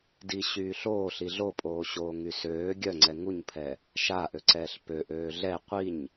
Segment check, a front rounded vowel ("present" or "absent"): present